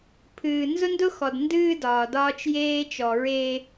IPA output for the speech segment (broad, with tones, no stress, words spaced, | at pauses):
pʰɨː˨ nzʊ˦ndʊ˦xɔ˨d ndɨː˦dɒː˨ dɒː˦t͡ʃjeː˦t͡ʃɔ˨ɹeː˦